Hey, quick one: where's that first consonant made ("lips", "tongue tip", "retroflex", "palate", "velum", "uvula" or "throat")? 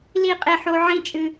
tongue tip